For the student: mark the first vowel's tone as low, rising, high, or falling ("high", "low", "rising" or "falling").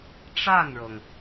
falling